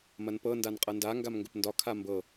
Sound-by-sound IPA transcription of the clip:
m ɐ n p ɤ n d a n qʼ ɤ n d a ŋ ɡ a m ŋ ɡ ʊ p n d ɒ kʰ a m b ɤ

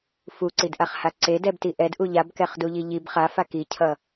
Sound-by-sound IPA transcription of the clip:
f u ǀ i d ʔ a χ h a ǀ e d ɛ b t i ʔ ɛ d ʔ u ʎ a b k ɛ χ d u ʎ i ʎ i b χ a f a k i cʰ ʌ

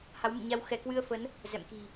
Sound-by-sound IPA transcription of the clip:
h a˨˦ w m ɨ̰˧˨ ɲ a˧ w x ɛ˧˩ k w ɨ˧ ə̯ f ə˨˦ n | z ɛ̰˧˨ m k i̤˨˩

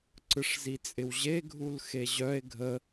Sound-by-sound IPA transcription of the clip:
ǀ ɯ ʂ z i t͡sʼ ɪ w ʑ e ɡʱ u l x e ʑ œ e̯ ɡʱ ə

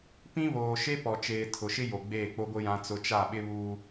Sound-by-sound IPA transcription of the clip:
p ĩ˦ β oː˨ ʃ e˦ p ɔ˨ t͡ʃ eː˨ tʰ ʊ˨ ʃ ɪ˦ j o˨ ɡ͡b eː˦˨ k͡p o˦ ɡʷ ɪ˦ j ã˦ t͡s ʊ˦ t͡ʃ a˦˨ ɓ ɪ˦ β uː˦

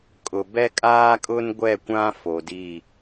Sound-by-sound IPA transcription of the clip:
kʼ ʊ˨ b ɛ˦ kʼ aː˦ kʼ ʊ˦ n ɡʷ ɛ˦˨ kʷ ã˦ f o˨ d i˦˨

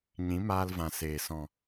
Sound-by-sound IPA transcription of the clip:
ɲ ĩ˨˦ m aː˧ l v ã˨ s eː˨ s ɔ̃˨

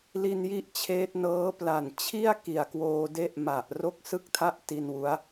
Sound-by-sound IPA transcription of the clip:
l i˧ n j i˦˥ ʔ t͡ɕʰ eː˦˥ t̚ n ɤː˦˥ p l a˨˩ n t͡ɕʰ i˥˩ a̯ k i˨˩ a̯ k w oː˧ d e˦˥ ʔ m a˨˩ ʔ r o˥˩ k̚ s ɯ˥˩ k̚ tʰ a˥˩ ʔ t i˧ n w u˦˥ a̯

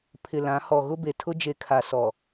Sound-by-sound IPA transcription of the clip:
pʰ ɪ˨ l ã˨˦ h ɔ˨ ɣ ʊ˦ b e˨ tʰ ʊ˦ d͡ʒ e˨ kʰ a˨ s ɔ˨

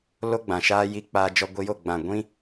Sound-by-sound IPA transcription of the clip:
l o˦ ɡ͡b ã˨ ʃ aː˦ j i˧ k͡p aː˧ d͡ʒ ɔ˧ ɡʷ i˧ j o˦˨ ɡ͡b ã˨ ɡʷ ĩ˦

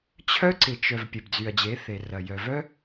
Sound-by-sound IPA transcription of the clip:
t͡ɕʰ œ˦ ǀ ɪ˨ t͡ʃ œ˨ v pʲ e˨ b d͡z y˨ ɐ̯ d͡ʑ e˨˦ θ e˨ r ɐ˨ j œ˨ v œ˦

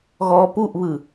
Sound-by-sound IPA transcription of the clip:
ɣ ɔ p u ʔ β ɯ

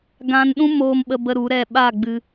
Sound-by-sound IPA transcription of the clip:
ɡ ã˧ n ɗ ũ˦ m oː˧ m ɓ ə˧ b ə˦ ɾ u˨˦ ɾ ɛ˦˨ ɓ a˦˨ ɡ͡b ɨ˧

